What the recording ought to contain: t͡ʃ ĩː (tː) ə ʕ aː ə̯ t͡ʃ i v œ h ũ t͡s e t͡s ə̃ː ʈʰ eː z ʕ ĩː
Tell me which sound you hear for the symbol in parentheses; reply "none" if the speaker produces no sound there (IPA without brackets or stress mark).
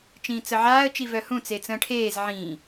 t͡s